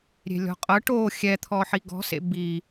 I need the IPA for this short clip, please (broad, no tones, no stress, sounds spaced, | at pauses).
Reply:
ɾʲ e̤ lʲ ɔ̤ qʼ ɤ ʈ o xʲ ɛ t̪ʰ ɔ ħ i ɡ ɔ̤ s ḛ b i